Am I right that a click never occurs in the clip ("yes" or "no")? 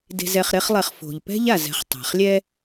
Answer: yes